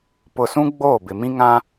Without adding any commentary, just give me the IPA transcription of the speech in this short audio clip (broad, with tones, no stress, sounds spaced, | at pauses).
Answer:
p ʊ˨ s ũ˦ ɡ͡b oː˦˨ b ɪ˨ m ĩ˦ ŋ ã˦